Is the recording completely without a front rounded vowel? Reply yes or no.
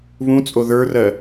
yes